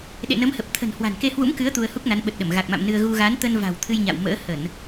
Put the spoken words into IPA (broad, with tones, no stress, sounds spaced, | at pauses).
ɗ ḛ˧˨ n ə˨˦ m h ə˨˩ p̚ t̪ʰ ə̤˨˩ n h w a̤˨˩ n k e˧ h w ṵ˧˥ m k ɨ˨˦ ə̯ t̪ u˧ ə̯ h u˦˥ k̚ n a˨˦ n ɓ ə˨˩ t̚ ɗ ə˧˩ m ɣ a˨˩ k̚ m a̰˧˨ m n ɨ˧ ə̯ ɣ u˧ ɣ a˨˦ n t̪ ə˧ n v a̤˨˩ w t̪ʰ ɨ˧ j ɲ a̰˧˨ w m ə̰ː˧˥ h ə˧˩˨ n